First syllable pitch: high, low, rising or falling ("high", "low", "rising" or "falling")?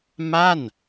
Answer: falling